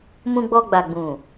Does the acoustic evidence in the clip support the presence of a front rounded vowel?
no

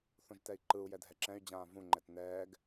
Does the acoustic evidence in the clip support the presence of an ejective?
no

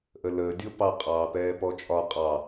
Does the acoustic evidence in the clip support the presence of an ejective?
yes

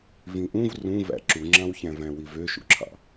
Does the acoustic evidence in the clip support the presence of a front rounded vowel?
yes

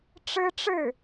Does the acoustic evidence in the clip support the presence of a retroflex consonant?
yes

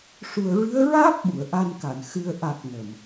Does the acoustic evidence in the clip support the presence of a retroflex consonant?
yes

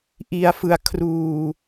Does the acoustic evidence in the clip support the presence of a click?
no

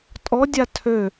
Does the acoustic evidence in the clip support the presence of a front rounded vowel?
yes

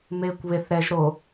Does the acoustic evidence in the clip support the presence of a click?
no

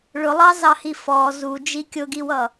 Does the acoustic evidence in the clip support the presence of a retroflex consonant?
yes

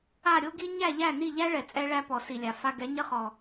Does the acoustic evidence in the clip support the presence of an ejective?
yes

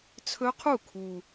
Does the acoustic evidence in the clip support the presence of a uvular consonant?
yes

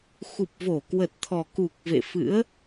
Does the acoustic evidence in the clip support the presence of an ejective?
no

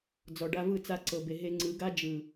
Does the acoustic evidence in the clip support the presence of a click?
yes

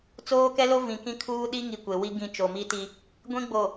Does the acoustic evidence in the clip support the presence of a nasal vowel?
yes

